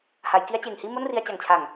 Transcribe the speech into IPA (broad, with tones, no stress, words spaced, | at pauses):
ha˩˦jki˦˥a̯t͡ɕeː˨˩ŋhiː˥˩ mo˥˩nri˧a̯t͡ɕa˨˩ŋt͡ɕʰa˨˩ŋ